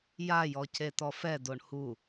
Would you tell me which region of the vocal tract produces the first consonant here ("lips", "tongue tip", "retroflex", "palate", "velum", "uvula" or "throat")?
palate